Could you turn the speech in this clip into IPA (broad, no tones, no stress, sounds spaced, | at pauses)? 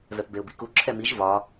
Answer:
v ɛ p b e ʊ̯ b ḭ k u ǁʰ ɛ m i ʒ v ɒ